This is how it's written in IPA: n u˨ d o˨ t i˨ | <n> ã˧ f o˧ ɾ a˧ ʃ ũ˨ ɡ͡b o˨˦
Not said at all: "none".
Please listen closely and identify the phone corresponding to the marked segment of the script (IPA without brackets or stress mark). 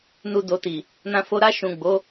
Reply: n